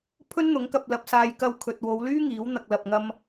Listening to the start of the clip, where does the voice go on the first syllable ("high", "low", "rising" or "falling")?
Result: high